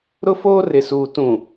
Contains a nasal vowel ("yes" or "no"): yes